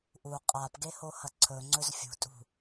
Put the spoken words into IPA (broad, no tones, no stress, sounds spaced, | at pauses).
ʔ u qʼ a p ɡ e h o h ɐ ǀʰ ɵ ŋ͡ǀ ɵ z fʲ ṳ tʼ ṳ